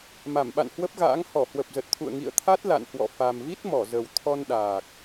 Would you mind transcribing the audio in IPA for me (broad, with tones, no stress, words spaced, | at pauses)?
ma˧˩mɓa̰˧˨nhwə˦˥p̚ɣa̰ː˧˥ŋ hɔ˧˩hwə˨˩p̚zə˨˩t̚t̪ʰṵ˧˨ə̯ ŋḭ˧˨ə̯t̪ʰa˦˥t̚la̰˧˨nhwɔ̰˧˨ fa˨˩mvi˦˥t̚ mɔ˧˩zə˨˩w t̪ʰɔ˧nɗaː˨˩k̚